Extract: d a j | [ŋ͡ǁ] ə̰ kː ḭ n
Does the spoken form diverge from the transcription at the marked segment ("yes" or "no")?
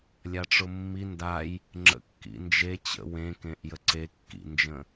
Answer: no